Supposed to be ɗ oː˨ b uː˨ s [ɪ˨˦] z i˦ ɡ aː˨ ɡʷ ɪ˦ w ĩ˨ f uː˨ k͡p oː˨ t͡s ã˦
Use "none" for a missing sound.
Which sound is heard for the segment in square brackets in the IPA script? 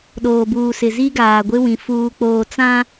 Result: ɪ˨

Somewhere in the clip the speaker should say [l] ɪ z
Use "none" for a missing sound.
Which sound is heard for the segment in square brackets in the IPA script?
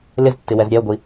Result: l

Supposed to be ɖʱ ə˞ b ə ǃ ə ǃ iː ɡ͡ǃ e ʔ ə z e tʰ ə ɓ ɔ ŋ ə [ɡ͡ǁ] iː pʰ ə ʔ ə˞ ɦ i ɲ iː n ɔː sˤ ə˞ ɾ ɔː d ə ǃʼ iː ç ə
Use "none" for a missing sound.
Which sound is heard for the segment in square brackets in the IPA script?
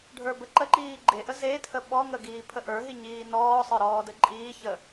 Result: ɡ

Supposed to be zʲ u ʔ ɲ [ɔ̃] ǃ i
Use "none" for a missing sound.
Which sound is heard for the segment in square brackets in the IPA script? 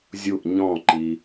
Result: ɔ̃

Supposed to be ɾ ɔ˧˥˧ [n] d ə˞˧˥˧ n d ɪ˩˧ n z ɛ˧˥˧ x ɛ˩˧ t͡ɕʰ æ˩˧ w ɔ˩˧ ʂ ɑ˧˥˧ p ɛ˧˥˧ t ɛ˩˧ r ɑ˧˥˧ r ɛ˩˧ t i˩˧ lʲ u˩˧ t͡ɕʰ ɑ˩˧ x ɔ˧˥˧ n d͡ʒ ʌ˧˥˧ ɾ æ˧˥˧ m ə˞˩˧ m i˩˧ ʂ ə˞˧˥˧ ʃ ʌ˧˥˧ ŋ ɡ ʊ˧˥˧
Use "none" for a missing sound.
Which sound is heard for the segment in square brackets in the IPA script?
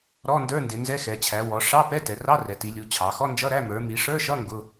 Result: n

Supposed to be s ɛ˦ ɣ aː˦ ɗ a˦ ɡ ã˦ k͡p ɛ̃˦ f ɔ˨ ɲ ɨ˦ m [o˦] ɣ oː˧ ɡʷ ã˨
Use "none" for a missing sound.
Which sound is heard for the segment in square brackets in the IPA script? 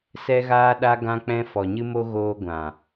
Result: o˦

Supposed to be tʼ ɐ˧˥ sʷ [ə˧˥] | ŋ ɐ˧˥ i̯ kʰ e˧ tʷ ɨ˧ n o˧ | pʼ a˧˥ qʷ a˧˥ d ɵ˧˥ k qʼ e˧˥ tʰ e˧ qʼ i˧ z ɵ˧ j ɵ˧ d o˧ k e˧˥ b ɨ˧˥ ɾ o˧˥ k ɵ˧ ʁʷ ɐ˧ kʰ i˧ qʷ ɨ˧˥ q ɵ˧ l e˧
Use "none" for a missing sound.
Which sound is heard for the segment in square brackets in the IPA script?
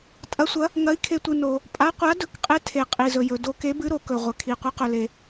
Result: ɐ˧˥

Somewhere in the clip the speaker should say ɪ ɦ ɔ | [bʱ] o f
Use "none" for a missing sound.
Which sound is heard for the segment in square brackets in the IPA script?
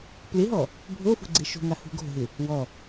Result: bʱ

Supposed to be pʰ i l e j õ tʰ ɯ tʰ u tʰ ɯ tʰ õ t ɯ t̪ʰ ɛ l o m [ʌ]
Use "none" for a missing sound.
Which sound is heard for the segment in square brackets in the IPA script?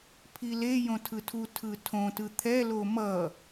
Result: ʌ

